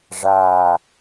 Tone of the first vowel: falling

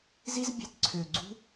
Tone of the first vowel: high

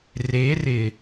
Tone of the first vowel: rising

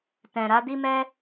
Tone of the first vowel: low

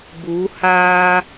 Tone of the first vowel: rising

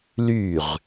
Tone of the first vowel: falling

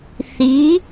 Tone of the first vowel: rising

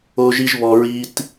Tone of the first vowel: high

